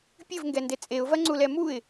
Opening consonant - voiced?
no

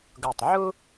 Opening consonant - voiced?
yes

